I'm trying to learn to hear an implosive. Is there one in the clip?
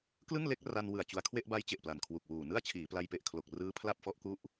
no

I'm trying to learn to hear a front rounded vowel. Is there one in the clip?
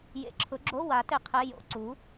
no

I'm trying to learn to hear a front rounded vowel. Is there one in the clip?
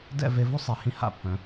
yes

